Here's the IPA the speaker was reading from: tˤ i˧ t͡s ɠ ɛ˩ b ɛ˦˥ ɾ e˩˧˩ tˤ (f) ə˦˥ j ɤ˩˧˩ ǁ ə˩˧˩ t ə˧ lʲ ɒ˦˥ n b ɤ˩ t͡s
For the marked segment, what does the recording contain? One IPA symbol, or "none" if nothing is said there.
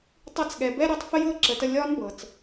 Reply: f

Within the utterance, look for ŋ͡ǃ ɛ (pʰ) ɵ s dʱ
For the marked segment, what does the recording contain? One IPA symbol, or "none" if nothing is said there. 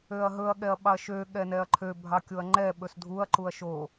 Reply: ɓ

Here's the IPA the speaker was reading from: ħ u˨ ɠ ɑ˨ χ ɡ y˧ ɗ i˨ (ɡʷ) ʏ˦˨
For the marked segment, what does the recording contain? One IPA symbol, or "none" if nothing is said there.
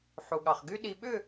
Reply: ɓ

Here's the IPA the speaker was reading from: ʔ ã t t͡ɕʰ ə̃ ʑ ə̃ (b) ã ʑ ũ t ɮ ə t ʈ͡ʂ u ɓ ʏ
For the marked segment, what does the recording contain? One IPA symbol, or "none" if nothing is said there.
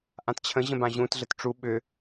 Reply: b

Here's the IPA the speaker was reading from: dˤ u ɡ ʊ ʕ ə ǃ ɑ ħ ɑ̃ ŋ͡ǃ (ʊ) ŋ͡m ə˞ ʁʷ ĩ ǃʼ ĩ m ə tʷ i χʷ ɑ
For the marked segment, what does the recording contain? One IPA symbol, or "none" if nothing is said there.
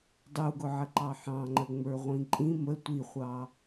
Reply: ə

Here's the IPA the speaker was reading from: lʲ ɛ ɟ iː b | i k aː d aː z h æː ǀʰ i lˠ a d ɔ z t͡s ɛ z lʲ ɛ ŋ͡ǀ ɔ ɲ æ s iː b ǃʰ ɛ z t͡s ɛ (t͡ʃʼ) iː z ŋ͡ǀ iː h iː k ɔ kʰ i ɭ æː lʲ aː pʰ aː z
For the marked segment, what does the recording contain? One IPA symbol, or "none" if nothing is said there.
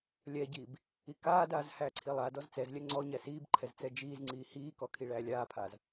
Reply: d͡ʒ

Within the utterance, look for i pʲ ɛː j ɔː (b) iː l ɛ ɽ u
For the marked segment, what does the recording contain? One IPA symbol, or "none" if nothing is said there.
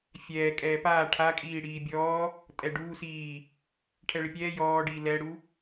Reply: ɖ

